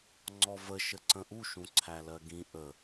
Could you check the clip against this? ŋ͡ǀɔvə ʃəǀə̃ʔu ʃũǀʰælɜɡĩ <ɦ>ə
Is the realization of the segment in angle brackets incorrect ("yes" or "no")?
yes